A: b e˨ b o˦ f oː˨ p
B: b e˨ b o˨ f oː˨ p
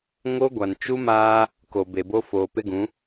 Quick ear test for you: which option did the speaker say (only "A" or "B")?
A